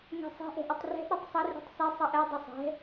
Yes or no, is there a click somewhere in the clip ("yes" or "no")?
no